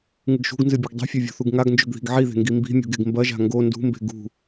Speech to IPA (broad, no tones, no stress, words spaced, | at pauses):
ŋɨɡʃṳɡnzɨ bʲeɡdˤe̤fʲɐ vʲo̤θuɡŋaɡnd͡ʒɵɡ ði̤ɡʕiðe̤ ŋɡimbi̤mʲo̤ɡ eɡmbɐʒa̤ ŋɡo ndṳmbe̤ ɡṳ